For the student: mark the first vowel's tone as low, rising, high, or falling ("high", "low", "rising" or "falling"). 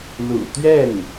low